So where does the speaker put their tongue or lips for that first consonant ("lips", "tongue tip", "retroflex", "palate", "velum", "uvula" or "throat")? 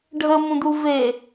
retroflex